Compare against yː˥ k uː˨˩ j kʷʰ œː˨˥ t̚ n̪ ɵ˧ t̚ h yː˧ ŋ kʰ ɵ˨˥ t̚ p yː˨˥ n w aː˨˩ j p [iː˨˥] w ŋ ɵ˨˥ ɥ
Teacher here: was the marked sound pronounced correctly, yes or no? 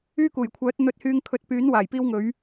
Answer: no